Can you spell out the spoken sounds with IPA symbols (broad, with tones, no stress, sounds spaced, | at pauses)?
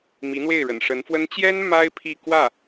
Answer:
m i˧˥ n̪ w e˥˩ ɪ̯ ɻ ə̰˨˩ n ʂ ə˧˥ n f w ə˥ n t͡ɕ j ɛ˥ n m a˥ ɪ̯ pʰ i˥˧ k w ä˥˩